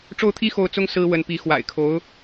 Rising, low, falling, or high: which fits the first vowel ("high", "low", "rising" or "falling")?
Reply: falling